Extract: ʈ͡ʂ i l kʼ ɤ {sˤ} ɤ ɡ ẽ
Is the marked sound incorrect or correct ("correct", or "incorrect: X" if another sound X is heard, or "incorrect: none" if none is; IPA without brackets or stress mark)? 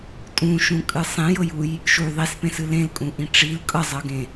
incorrect: zˤ